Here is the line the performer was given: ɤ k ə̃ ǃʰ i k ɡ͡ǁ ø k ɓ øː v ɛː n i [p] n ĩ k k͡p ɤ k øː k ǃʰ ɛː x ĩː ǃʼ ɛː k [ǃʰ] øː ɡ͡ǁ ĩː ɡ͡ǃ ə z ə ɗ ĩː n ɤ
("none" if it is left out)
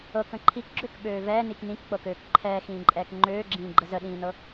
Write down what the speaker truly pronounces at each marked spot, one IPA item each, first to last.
k, ŋ͡ǃ

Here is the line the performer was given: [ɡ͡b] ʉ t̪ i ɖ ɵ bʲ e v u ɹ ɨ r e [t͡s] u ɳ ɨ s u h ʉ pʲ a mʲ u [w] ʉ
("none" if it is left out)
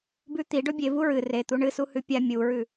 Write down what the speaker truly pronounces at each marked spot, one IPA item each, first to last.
b, t̪, ɹ

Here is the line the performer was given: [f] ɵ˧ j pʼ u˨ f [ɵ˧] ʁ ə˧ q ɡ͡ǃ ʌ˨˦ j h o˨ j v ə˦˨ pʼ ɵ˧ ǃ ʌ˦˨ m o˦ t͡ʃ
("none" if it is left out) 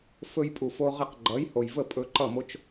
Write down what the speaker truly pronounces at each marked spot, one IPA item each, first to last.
f, o˧

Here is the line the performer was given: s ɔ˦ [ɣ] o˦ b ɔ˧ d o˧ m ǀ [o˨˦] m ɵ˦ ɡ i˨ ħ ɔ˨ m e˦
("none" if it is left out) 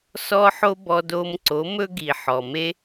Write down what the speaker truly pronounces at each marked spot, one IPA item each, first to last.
ħ, o˨˦

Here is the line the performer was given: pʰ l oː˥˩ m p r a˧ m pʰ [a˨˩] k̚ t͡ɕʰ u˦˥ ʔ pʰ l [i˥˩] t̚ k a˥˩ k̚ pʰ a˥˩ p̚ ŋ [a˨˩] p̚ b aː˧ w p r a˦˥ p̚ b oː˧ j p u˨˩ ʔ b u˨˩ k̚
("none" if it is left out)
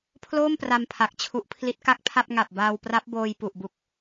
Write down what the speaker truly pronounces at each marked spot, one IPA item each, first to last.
a˨˩, i˦˥, a˨˩

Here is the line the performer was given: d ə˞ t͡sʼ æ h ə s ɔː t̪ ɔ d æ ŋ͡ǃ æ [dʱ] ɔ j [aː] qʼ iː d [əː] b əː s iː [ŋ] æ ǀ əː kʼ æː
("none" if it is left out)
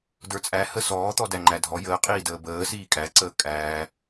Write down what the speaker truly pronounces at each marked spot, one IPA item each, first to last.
dʱ, əː, əː, kʼ

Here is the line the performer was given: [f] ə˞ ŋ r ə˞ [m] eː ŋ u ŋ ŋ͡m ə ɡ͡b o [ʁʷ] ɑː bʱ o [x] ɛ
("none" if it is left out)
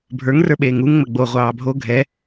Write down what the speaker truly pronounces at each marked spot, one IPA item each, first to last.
bʱ, ɓ, ʁʷ, ɡʱ

